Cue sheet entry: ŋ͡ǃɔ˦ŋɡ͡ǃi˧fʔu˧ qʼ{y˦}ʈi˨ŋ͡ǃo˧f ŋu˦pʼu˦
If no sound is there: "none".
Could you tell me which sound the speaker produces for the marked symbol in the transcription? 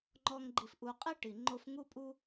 i˦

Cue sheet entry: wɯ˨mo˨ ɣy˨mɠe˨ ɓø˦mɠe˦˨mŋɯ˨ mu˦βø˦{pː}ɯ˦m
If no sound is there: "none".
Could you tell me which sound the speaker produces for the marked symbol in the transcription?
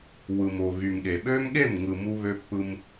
pː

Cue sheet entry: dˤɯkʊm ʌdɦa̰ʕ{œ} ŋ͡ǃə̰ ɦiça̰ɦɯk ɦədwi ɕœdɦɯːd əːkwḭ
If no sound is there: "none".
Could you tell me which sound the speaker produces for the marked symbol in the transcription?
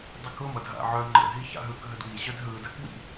œ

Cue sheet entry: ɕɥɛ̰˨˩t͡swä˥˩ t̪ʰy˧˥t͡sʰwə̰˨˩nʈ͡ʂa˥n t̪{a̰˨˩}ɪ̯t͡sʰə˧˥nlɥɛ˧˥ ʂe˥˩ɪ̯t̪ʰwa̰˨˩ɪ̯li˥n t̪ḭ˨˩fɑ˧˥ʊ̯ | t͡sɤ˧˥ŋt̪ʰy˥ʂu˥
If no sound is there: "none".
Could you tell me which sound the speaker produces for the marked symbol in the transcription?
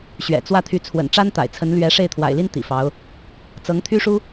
a̰˨˩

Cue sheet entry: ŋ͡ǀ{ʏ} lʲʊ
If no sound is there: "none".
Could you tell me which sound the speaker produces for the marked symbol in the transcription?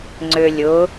ʏ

